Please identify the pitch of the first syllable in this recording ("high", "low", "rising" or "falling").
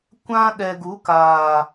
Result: high